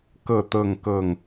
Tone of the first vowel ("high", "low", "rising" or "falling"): falling